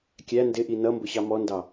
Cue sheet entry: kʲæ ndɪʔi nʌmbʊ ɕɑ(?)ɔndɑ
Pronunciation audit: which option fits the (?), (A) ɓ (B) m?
B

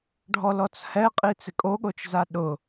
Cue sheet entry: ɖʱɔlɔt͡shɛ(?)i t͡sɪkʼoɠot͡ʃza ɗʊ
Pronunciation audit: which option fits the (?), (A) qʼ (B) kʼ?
A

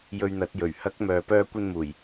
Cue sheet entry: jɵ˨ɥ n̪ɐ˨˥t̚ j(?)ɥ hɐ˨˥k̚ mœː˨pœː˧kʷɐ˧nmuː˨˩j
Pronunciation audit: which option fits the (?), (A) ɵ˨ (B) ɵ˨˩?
B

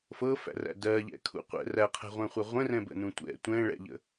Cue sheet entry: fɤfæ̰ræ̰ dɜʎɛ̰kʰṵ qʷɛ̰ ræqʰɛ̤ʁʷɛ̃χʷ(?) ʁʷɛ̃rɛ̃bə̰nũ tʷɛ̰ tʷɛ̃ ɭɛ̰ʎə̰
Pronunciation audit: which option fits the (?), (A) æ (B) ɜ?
A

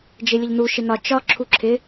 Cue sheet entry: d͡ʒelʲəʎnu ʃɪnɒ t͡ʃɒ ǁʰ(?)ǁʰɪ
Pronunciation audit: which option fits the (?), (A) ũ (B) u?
B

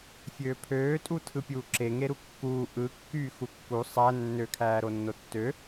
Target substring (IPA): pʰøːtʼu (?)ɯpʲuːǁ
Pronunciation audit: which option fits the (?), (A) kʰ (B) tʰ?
B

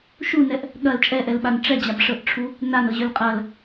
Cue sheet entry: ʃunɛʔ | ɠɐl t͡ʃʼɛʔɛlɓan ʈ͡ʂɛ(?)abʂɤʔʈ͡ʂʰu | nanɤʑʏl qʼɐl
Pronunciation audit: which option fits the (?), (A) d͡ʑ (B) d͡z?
A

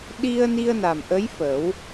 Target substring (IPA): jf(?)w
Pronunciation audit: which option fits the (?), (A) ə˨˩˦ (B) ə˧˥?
A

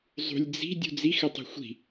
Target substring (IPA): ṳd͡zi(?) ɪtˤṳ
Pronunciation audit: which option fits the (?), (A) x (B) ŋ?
A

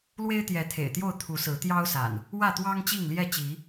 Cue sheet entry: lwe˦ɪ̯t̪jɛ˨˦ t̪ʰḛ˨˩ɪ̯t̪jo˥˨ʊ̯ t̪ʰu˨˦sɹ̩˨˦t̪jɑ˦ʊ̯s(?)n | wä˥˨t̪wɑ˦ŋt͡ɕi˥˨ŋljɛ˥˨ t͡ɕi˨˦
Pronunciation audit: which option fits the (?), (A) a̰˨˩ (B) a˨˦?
A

